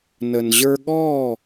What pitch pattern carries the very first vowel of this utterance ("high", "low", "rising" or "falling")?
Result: low